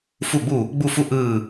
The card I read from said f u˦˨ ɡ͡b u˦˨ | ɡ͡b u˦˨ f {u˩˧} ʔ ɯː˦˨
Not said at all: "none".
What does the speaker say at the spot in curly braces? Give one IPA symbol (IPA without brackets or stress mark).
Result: u˦˨